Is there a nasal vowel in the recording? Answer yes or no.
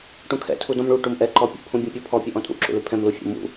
yes